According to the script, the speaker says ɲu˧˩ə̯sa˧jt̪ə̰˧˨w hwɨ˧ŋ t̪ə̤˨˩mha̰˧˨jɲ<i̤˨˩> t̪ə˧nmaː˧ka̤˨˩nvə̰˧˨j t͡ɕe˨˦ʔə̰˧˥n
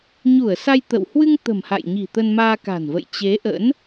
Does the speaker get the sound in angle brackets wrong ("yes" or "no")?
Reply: no